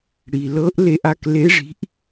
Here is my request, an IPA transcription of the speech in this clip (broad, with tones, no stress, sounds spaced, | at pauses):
ɽ i˩ l ɤ˧˥ ʔ l e˧ ʔ a˧ k l e˧˥ ʐ i̤˧˥ ʔ